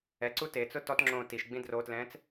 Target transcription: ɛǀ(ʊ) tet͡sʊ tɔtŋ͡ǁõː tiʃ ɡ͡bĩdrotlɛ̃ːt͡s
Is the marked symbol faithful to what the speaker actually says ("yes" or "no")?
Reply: no